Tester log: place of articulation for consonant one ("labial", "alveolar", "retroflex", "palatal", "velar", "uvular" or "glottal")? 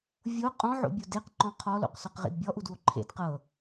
labial